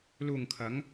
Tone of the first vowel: low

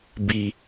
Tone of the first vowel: low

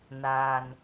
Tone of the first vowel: low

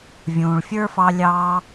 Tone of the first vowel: low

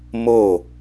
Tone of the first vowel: falling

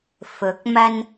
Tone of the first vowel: rising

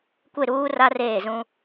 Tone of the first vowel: falling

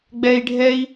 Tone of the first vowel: high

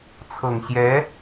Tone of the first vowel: low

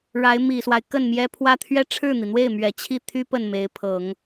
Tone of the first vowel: rising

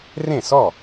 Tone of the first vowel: falling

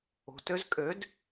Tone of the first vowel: low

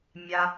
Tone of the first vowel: low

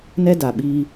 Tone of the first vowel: high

